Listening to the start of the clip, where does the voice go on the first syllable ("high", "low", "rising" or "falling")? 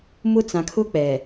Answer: high